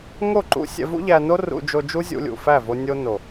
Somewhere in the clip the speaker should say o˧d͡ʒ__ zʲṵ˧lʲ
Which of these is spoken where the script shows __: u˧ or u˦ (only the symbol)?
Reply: u˦